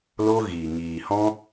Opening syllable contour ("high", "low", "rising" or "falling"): high